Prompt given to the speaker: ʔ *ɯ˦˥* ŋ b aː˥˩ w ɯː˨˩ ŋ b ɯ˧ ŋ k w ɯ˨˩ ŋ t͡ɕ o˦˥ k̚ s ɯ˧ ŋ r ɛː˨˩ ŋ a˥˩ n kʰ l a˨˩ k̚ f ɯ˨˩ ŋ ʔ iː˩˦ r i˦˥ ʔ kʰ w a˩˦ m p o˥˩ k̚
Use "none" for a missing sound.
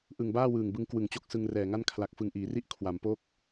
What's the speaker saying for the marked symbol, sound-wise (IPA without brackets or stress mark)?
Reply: ɯ˨˩